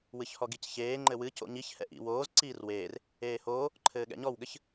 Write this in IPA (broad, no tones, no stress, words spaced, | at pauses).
wɨçhɔɡicçeː ŋ͡ǃɘwɨ co̰ɲiç hɛ̰ʔḭ woːz ǀiːrweːr | eːhoː | ǃʰɘːɠɛ̰ɲɔwɠɘç